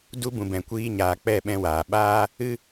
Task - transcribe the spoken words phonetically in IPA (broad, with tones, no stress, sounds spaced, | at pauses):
d u˧ b ũ˨ b ɛ̃˨ kʷ iː˧ ɲ aː˨ k͡p ɛ˦˨ ɓ ɛ̃˧ w aː˨ ɓ aː˦ | ɨ˦